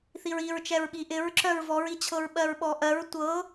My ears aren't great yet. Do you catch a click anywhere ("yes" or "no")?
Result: yes